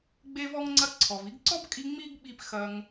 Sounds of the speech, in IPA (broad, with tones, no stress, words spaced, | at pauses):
ɡ͡be˧vɔ˧ŋŋ͡ǀɐ˧ ǀʰɔ˩vi˧ɡǀɔ˥bkʼi˧ ŋ͡mi˥ɡɓi˧p xɐ˧ŋ